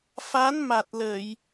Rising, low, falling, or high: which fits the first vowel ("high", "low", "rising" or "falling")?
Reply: rising